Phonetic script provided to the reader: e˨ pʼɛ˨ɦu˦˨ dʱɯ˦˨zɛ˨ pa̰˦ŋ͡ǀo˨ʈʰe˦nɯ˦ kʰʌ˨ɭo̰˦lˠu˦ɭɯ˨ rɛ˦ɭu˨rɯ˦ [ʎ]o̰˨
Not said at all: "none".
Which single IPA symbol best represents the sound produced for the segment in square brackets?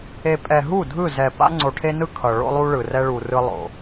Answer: lˠ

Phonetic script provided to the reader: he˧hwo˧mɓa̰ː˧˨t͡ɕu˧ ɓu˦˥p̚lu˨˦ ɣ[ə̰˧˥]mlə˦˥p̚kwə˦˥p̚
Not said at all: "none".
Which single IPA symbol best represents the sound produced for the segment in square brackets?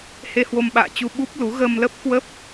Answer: ə˧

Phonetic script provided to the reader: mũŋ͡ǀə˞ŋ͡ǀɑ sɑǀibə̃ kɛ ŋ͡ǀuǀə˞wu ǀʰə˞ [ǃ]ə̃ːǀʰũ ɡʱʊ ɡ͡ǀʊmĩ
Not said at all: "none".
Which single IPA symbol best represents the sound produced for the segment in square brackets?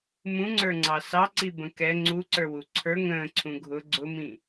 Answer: ŋ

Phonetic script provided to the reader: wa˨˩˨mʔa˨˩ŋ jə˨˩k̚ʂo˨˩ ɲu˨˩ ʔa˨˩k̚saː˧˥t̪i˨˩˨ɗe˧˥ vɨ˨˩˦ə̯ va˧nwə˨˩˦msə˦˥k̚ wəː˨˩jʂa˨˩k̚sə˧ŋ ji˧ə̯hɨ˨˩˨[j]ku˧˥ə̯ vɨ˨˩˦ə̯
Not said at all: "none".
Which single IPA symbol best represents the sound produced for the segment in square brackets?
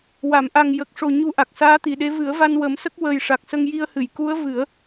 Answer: j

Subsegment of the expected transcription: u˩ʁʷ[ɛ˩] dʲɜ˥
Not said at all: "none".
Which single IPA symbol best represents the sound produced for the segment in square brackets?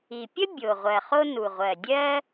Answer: ɜ˩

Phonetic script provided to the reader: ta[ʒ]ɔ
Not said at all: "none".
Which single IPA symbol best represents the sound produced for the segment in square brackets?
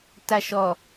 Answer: ʃ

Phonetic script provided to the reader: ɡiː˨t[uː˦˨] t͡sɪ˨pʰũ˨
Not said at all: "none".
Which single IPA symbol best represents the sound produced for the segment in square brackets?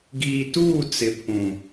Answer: uː˦˨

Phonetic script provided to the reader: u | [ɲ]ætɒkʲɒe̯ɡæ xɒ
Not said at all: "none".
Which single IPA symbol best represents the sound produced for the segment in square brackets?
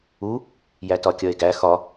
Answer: j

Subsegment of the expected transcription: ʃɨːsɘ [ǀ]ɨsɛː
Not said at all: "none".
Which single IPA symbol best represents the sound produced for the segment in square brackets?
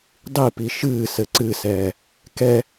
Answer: ǀ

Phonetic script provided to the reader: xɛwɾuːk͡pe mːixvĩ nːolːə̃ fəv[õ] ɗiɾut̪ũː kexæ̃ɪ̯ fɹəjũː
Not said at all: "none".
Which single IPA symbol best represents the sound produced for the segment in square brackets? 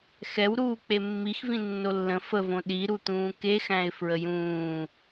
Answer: õ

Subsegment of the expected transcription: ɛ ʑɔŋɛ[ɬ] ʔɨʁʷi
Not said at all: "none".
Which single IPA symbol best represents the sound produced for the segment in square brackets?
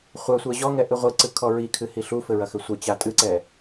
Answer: none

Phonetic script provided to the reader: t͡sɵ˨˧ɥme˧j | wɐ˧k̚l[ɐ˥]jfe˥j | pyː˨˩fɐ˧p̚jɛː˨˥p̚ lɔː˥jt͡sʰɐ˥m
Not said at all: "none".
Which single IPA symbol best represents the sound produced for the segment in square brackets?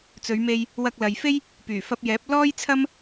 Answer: ɐ˨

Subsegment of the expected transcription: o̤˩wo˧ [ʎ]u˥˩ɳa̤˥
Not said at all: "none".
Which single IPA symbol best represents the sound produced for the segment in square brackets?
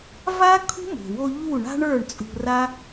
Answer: ʎ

